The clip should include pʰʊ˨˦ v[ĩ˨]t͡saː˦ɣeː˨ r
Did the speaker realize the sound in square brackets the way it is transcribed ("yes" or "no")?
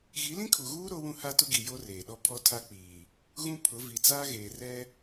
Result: no